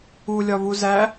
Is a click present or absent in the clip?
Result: absent